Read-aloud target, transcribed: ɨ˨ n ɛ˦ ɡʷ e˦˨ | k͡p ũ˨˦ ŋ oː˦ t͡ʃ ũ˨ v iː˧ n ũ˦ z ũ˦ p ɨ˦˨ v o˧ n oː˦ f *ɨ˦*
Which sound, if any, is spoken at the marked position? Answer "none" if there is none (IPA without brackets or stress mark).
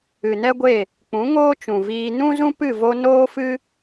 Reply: ɨ˦